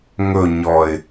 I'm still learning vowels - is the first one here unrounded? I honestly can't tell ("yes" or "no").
no